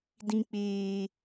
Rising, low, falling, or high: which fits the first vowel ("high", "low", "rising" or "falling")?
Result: high